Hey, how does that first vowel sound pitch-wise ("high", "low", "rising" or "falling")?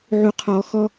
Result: low